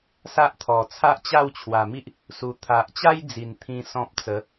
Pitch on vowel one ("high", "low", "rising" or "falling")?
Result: high